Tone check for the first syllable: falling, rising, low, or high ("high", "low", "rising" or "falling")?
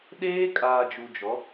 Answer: high